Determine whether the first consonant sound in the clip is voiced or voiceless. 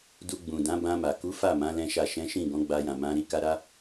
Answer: voiced